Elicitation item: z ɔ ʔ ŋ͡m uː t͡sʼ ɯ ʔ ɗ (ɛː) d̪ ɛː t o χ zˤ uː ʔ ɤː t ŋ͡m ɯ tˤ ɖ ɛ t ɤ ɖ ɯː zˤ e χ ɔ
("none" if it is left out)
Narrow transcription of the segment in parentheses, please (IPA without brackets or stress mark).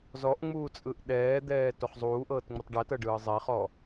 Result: ɛː